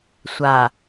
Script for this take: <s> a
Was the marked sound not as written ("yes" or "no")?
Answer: yes